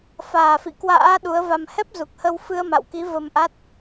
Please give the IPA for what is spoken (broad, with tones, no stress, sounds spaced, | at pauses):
f aː˨˩ f ḭ˧˨ k w a̰ː˧˥ ɗ u˨˦ ə̯ v a˧ m h ɛ˦˥ p̚ z u˨˩ k̚ h ə˧ w f ɨ˧ ə̯ m a̰˧˨ w k i˨˦ v ə˧ m ʔ a˦˥ t̚